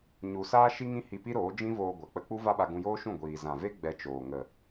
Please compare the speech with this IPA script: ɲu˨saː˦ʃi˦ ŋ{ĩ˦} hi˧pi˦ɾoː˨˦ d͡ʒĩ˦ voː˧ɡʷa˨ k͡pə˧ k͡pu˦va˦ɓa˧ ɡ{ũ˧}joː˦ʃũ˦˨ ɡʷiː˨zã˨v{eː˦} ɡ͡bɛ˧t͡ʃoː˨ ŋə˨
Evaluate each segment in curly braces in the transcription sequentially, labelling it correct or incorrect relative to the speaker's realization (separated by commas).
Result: correct, correct, incorrect